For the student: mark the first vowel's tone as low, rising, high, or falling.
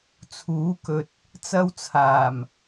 rising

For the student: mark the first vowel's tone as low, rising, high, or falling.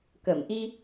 low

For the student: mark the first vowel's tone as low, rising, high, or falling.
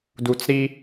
low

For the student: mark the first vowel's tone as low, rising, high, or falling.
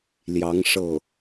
rising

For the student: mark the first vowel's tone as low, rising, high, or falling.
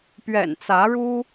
low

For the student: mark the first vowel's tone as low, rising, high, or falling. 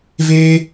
high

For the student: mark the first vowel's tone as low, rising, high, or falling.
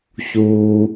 low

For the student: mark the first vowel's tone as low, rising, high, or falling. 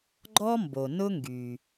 high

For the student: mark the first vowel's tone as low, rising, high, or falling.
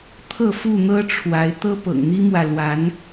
falling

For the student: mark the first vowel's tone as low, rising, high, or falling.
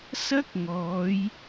high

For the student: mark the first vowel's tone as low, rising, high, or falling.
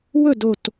falling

